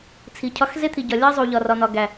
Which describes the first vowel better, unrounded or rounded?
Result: unrounded